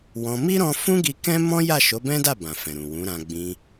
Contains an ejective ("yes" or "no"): no